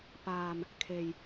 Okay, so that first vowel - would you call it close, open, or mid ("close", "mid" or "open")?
open